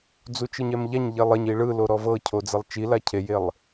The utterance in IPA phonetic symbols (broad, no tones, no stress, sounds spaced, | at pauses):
d͡z u t͡ʃ ɯ ɲ ɛ m ʎ a ɲ ʎ e lˠ e ɲ i ɭ ɯ l o ɾ ɔ v ɤ cʰ o d͡z ɛ lˠ t͡ʃ i l a cʰ e j e lˠ